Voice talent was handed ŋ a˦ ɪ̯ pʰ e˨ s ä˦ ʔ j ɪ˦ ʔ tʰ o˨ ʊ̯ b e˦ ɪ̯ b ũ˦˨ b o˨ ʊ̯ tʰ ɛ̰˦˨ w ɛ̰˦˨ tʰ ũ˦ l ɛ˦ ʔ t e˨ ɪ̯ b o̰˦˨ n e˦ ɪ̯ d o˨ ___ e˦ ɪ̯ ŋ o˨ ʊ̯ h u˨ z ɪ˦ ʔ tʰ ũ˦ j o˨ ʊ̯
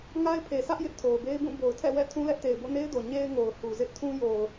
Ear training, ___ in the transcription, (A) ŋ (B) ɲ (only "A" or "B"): B